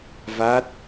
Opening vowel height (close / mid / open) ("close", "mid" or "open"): open